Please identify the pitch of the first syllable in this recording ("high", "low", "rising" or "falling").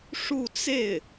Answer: falling